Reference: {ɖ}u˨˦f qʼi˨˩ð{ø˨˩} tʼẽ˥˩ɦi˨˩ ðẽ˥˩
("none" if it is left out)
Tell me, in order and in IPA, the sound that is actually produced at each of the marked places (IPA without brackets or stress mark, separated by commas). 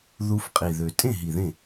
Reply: ð, ø˨˩